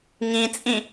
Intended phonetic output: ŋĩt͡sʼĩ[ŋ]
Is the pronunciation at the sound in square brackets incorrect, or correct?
incorrect